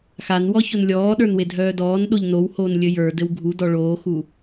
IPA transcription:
xanwɔçon lʲɔːɗə˞nwedʱœː dɔːnɗoʎ nowhoːnlʲɘ jə˞dɘw ɡʱudɔ ɭoːxu

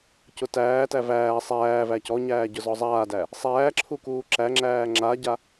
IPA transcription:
cʊtæːtæ væː sˤæː væcɔɲæː ɟʊzɔzˤaːdæ | sˤæːǁʰu kuːǁæŋ͡ǁæː ŋ͡ǁaɟa

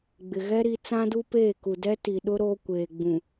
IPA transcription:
ɡ͡bɪ˨ɣɛ˦ɾi˨˦ t͡sã˦du˦peː˦˨ku˨ dɛ˦ti˨ɗʊ˦ ɾoː˦kʷeː˨ɡ͡bũ˨

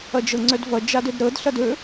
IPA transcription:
ʌd͡ʒɤŋ͡ǀœdvʌ d͡ʒadɵdɾɤd ɬʌdɵ

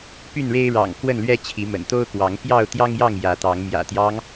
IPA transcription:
py˥˨nɻe˦ɪ̯ ɻɑ̰˨˩ŋ kwə˥˨nlɥɛ˦t͡ɕʰi˨˦ mə̰˨˩nt̪o˦ʊ̯kwɑ˨˦ŋ pjɑ˥˨ʊ̯ t̪jɑ˦ŋjɑ˥˨ŋ jä˨˦t̪ɑ˨˦ŋ mjä̰˨˩t̪jɑ˦ŋ

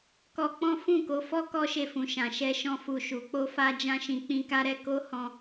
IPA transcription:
kɔ˧k͡pɔ̃˦ fũ˦˨ko˨˦fɔ˦ kɔ˦ʃe˧fũ˨ ʃã˨ʃɛ˧ ʃɔ̃˧fu˨ʃu˨ k͡po˧fa˧d͡ʒã˧ʃĩ˨ k͡pĩ˧ka˦ɾɛ˦ ko˦hɔ̃˧

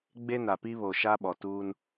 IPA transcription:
ɡ͡be˦na˨pi˦βo˨ ʃa˦ɓɔ˨tuː˦n

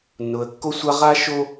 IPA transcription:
nːʊ˨ə̯kːo˦sʷa˦ ʁa˦ʃo˦

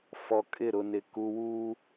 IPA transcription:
fɔ˨kʼɪ˦˨ɾʊ˨nɪ˨ ku˨wuː˦

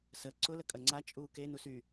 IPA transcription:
sə ǀʊ ləkʼɐŋ͡ǀa t͡ʃʼuːke nusy

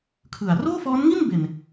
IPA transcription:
kʰɯ˨˩a̯ roː˥˩fɔː˦˥nŋi˥˩n be˨˩n

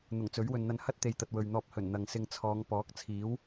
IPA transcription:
n̪ʊ˨˩ŋt͡sɵ˨˥ɥwɵ˨nn̪ɐ˧n hɐ˥t̚t̪e˨˧jt̪ɐ˨t̚ wɵ˨ɥn̪ɔː˧p̚ hɵ˨˩n n̪ɐ˨ŋsɪ˧ŋ t͡sʰɔː˨˧ŋ pɔː˨˥k̚t͡sʰiː˨˥w

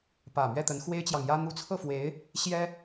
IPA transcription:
pä˨˩ mɥɛ˥˩t̪ə˧˥n xwe˥ɪ̯t͡ɕjɑ˨ŋjä˥ n̪u˧˥t͡sʰɤ˥˩fwe˧˥ɪ̯ | ɕjɛ˥

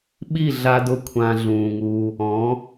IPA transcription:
ɓi˦˨ɮa˧dʊ˧ kʷʰã˧ɮũː˨ŋuː˧ | ɔ̃˨˦

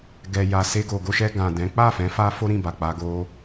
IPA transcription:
ɡɛ˨ja˨ se˧ɡo˨ɡo˧ʃɛ˧ ɡã˨ dɛ̃˨˦ k͡pa˦˨fɛ̃˨˦ fa˦ fo˦ɾĩ˦˨ba˨k͡pa˧ ɡo˦

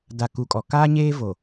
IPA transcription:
da˨ ku˨kʼɔ˨kaː˦ ɲeː˦vo˨

